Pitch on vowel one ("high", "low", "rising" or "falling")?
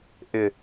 low